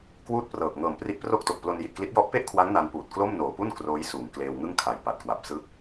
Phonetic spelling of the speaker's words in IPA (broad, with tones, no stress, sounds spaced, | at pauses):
k w uː˥˩ t̚ p r ɤː˨˩ k̚ ŋ ɤː˨˩ m p r i˦˥ ʔ p r o˥˩ k̚ t o˨˩ k̚ p l o˧ n j i˨˩ t̚ k l i˦˥ t̚ j ɔ˦˥ ʔ p e˥˩ ʔ kʰ w a˦˥ ŋ n a˧ n p uː˨˩ t̚ k l o˥˩ m n oː˨˩ p u˥˩ n k r oː˦˥ j s uː˨˩ ŋ k l eː˧ w ŋ ɯ˥˩ ŋ kʰ a˨˩ j p a˨˩ t̚ k w a˨˩ p̚ s ɯ˦˥ k̚